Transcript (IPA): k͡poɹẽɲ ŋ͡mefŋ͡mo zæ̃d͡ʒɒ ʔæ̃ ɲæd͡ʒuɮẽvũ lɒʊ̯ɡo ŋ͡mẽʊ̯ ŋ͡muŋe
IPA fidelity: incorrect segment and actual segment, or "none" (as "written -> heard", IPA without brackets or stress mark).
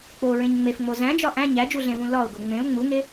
none